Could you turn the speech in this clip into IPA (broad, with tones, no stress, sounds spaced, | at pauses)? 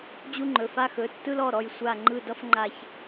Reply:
d͡ʑ u˦ ŋ͡ǃ ɵ˩˧˩ f a˦ x ɵ˩˧˩ tː ɯ˦ l ɔ˩˧˩ ɾ ɔ˧˩ j sʷ a˧˩ ŋ͡ǃ ɯ˧˩ d ʌ˦ f ŋ͡ǃ a˧˩ ç